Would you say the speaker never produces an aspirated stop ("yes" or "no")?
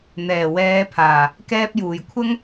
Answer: no